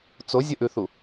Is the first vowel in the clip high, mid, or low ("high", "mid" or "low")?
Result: mid